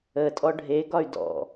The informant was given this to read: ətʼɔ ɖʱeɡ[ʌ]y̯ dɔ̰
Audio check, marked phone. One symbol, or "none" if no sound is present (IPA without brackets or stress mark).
ɒ